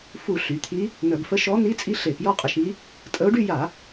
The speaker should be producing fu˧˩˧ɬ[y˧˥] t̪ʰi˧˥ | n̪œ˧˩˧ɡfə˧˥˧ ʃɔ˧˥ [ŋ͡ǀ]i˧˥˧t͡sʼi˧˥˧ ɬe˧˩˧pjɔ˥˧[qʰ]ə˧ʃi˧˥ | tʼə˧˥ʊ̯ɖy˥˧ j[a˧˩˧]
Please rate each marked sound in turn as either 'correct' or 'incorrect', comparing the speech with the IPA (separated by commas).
incorrect, incorrect, incorrect, correct